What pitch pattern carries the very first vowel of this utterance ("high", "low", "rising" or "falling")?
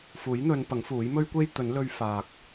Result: rising